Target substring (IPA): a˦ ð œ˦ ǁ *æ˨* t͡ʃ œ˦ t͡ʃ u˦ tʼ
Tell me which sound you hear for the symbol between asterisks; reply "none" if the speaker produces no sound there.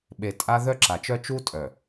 a˨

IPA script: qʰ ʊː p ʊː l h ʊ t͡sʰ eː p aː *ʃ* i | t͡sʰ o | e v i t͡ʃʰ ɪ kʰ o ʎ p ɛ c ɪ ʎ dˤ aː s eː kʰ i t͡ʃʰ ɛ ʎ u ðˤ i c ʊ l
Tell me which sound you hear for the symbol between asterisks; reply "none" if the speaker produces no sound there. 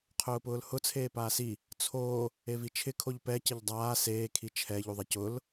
s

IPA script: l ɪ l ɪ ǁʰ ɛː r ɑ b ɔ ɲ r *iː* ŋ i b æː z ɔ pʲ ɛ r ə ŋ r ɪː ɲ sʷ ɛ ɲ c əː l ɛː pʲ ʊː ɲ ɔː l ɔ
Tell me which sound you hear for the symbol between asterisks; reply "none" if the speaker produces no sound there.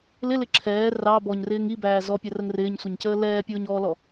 ɪː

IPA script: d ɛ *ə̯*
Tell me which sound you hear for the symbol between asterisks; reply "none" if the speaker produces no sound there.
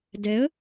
ə̯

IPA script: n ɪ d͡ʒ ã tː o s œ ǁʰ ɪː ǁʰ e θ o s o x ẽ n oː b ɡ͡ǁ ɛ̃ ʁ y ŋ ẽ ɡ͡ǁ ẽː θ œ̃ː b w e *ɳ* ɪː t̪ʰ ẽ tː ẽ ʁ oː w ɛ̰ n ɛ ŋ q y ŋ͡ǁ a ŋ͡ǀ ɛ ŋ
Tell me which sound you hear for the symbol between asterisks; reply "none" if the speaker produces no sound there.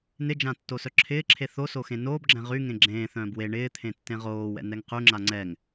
ɳ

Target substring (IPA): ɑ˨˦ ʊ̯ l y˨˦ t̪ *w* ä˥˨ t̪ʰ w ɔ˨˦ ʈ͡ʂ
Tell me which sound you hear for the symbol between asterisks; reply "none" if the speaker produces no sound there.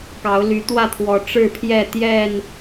w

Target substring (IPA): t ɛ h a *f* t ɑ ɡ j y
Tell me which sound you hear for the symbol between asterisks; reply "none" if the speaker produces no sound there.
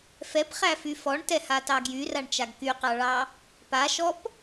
none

